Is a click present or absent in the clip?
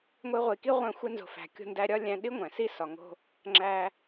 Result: present